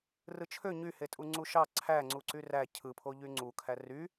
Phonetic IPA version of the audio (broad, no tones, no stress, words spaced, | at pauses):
rɯt͡ʃʰø ɲyhetʼu ŋ͡ǀuʃɑ ǀʰæŋ͡ǀuǀy ræ cʰɯpʰo ʎyŋ͡ǀukʰæ ry